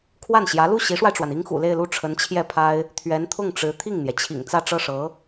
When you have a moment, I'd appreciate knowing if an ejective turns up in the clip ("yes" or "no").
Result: no